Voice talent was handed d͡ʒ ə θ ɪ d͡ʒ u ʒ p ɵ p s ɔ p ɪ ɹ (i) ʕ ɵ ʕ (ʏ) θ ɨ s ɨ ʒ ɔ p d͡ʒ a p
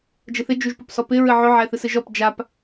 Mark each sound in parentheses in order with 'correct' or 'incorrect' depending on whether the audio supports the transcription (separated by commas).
incorrect, incorrect